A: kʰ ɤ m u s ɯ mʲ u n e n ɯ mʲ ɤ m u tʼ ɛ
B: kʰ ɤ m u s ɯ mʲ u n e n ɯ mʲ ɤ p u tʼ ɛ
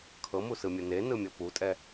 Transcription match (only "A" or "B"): B